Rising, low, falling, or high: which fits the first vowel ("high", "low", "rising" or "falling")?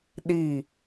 falling